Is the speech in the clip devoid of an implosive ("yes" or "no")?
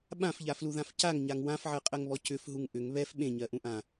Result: no